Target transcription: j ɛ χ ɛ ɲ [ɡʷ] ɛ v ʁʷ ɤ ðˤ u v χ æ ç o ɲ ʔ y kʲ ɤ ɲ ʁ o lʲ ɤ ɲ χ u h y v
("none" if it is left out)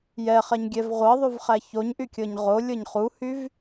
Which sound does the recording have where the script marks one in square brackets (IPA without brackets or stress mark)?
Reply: ɡʲ